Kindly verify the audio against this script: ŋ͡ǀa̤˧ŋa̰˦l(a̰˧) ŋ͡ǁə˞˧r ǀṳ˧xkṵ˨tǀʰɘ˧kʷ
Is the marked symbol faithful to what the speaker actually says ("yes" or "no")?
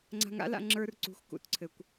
yes